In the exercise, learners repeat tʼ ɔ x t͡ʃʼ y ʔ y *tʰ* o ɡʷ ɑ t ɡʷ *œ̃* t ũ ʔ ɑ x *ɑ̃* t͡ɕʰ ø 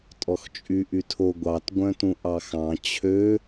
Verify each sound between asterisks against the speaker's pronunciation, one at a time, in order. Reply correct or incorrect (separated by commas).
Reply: correct, correct, correct